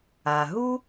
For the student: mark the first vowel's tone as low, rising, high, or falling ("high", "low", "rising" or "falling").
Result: low